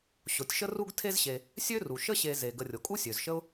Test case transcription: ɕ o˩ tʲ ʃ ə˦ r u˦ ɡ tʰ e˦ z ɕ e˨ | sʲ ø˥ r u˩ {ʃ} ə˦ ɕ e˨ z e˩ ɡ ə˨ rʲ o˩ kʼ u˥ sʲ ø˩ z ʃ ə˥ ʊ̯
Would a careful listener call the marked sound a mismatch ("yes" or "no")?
no